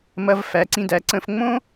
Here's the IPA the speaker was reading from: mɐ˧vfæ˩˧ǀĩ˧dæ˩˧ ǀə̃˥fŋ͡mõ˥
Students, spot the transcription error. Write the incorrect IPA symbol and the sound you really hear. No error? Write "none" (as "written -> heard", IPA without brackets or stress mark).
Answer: ə̃˥ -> ə̃˧